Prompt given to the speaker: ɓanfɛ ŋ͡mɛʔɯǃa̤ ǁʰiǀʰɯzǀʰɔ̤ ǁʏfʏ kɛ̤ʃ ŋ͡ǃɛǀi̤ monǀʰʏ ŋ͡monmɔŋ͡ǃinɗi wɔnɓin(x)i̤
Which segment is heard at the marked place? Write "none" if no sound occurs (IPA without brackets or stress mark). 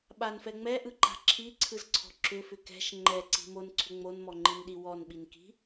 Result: k